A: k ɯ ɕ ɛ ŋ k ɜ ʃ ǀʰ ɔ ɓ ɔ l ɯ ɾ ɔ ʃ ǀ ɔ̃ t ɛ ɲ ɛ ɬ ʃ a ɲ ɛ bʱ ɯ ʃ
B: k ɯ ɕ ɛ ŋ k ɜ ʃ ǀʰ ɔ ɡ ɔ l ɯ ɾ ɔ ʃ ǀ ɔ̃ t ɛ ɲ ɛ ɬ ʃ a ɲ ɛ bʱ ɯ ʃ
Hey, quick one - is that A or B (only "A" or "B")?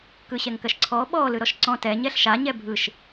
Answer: A